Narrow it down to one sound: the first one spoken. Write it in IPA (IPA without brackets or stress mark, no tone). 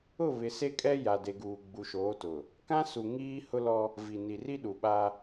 ʊ